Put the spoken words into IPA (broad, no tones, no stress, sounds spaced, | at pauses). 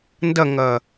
n d ɐ ŋ ɐː